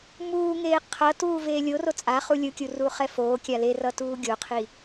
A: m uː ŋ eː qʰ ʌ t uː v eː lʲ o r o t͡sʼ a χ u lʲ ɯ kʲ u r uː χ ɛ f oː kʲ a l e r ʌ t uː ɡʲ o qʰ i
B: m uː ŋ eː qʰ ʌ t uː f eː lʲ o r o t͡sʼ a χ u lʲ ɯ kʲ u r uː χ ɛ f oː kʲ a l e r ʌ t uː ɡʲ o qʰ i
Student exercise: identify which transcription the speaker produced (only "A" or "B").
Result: A